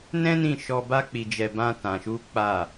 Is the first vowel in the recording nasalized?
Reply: yes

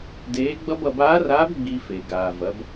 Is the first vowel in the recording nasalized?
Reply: no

